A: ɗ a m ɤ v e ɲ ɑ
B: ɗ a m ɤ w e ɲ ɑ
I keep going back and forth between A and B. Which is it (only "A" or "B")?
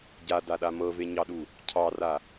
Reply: A